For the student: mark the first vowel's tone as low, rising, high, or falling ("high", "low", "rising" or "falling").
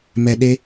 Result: low